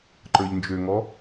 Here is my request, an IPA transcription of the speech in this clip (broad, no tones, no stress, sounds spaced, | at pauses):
ǃ ə˞ ʎ n d͡ʒ ø ŋ ɔ